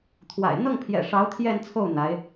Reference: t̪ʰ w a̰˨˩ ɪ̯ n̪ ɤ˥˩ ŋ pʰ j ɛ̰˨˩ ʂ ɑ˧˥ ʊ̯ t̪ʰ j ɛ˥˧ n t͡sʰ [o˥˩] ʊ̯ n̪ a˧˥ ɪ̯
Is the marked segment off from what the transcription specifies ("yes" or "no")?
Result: no